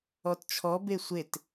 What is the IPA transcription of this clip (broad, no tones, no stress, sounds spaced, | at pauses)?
ɔ t t͡ʃʰ ɔ b e sʷ e t